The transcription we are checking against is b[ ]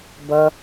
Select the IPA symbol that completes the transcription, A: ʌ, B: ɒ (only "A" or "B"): A